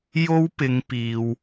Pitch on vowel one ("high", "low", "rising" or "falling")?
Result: high